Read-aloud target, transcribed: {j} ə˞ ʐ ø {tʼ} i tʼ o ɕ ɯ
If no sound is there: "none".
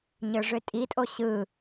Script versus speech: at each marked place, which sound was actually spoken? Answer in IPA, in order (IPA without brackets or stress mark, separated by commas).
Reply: ɲ, tʼ